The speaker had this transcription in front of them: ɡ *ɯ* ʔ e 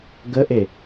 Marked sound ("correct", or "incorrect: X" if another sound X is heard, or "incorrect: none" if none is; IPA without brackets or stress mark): incorrect: ə